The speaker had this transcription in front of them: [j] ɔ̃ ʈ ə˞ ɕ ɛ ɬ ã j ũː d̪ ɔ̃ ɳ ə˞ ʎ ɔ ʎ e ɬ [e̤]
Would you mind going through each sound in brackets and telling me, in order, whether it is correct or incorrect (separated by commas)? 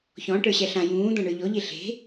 incorrect, correct